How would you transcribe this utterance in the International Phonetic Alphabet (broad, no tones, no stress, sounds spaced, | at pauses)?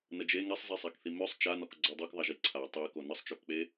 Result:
n ə d͡ʒ e ŋ ɛ sˤ z i sˤ a k θ i m ø sˤ t͡ʃ a n ɔ k ɡ͡ǀ ɔ dˤ o k ðˤ a ʒ i ǀʰ a tˤ e k o n ə sˤ t͡ʃ ø k k͡p e